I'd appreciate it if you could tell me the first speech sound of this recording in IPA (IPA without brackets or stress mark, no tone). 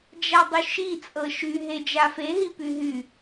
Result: d͡ʒ